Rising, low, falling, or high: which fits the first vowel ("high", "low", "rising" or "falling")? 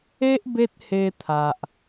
high